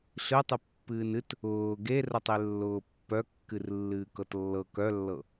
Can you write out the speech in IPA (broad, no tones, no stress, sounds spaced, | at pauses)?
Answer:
ɬ ɨ tˤ ɨ pː ɨː n ɨ t | ʊː ɡ e r ə tˤ e lː ʊː pː œ kː ɨ r lː ɨː k ɤ t lː ɤ k œ lː ɤ